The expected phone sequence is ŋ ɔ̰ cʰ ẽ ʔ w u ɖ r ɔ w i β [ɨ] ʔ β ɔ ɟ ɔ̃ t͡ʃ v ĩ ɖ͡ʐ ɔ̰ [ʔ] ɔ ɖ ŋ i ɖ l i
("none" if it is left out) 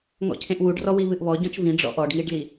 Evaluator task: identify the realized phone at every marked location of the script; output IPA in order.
ɨ, ʔ

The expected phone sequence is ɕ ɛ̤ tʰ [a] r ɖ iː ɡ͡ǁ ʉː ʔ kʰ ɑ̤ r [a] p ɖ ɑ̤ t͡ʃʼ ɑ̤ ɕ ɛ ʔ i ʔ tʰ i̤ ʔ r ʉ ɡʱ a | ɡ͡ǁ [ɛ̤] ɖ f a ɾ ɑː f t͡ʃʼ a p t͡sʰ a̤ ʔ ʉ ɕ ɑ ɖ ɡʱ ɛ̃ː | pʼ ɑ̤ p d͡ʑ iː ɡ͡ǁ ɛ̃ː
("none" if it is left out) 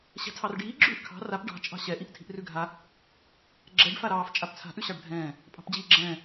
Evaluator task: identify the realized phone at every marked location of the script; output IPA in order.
ɑ, a, ɛ

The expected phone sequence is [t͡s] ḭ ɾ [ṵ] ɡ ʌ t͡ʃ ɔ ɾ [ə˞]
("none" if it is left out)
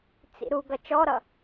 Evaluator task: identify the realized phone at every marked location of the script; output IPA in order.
t͡s, u, ʌ

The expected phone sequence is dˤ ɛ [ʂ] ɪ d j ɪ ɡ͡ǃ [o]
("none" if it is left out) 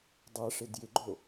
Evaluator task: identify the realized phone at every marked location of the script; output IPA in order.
ʂ, o

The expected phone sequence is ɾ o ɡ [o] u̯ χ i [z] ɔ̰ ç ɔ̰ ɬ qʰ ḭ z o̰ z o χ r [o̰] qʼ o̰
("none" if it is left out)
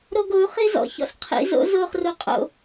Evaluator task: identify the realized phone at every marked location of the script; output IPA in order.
o, z, o

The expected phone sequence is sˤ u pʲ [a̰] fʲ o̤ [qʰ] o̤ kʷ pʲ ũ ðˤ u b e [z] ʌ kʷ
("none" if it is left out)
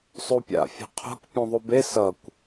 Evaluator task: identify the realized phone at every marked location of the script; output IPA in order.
a̰, qʰ, s

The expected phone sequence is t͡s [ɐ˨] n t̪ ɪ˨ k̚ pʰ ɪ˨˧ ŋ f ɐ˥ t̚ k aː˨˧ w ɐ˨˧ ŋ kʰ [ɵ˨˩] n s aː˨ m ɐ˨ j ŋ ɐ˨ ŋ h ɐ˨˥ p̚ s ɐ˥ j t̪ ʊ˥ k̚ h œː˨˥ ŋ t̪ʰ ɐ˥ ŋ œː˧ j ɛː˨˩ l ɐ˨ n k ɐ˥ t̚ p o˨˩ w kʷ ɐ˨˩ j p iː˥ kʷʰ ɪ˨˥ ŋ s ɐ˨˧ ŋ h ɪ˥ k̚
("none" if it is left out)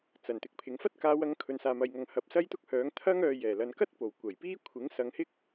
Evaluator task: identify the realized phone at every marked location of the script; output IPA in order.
ɐ˨˩, ɵ˨

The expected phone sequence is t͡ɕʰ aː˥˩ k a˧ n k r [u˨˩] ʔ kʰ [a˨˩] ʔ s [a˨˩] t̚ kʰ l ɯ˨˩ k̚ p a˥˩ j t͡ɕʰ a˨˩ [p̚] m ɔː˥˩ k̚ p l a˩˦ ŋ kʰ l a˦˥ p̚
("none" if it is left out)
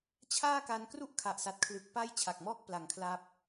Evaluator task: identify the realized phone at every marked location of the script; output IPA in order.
u˥˩, a˨˩, a˨˩, k̚

